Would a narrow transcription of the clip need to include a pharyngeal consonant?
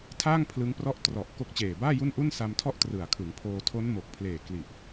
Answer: no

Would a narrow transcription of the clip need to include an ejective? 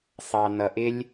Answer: no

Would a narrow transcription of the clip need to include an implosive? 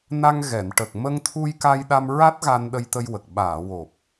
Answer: yes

